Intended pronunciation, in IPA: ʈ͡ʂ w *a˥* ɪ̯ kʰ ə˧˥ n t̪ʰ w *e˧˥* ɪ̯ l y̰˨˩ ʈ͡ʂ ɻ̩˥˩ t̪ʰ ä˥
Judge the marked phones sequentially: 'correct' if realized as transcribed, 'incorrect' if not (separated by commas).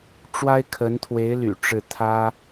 correct, correct